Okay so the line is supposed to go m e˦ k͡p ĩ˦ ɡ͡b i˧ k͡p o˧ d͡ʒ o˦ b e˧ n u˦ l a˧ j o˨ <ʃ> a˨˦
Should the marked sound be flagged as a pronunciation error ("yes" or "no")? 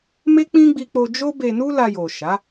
no